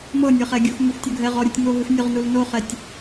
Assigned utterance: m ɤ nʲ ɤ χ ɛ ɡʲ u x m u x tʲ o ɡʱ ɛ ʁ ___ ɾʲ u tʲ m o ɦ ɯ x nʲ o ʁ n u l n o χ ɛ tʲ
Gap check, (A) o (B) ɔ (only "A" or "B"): B